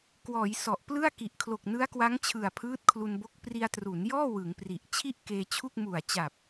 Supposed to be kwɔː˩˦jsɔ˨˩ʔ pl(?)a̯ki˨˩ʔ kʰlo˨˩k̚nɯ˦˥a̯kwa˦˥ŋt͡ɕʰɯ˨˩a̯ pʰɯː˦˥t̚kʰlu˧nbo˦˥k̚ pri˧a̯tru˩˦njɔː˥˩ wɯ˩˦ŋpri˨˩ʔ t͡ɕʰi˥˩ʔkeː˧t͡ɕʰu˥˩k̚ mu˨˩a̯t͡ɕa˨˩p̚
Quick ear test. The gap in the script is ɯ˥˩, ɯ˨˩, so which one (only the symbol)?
ɯ˥˩